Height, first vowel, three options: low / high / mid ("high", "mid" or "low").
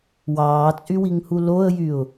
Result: low